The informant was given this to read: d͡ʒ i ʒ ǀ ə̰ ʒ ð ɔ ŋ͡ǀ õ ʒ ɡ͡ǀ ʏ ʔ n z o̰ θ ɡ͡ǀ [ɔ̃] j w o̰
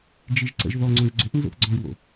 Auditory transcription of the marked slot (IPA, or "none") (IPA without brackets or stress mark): ɔ̃